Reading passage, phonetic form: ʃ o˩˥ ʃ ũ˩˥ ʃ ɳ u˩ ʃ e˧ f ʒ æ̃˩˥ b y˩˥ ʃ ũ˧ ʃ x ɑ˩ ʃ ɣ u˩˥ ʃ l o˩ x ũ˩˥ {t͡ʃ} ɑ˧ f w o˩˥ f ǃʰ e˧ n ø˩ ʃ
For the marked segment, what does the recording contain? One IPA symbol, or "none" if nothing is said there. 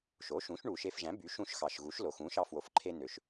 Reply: ʃ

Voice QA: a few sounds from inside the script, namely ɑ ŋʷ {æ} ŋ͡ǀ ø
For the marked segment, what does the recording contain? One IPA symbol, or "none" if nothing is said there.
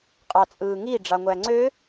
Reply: æ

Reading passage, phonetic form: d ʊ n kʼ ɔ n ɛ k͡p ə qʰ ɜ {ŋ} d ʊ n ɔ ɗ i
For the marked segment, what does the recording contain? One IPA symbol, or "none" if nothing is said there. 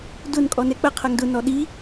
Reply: ŋ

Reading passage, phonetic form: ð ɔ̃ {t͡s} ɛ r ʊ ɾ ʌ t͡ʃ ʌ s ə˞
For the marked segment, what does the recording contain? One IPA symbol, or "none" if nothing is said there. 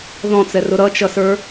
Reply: t͡s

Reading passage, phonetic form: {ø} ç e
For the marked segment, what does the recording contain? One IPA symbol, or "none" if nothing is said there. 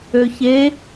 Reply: ø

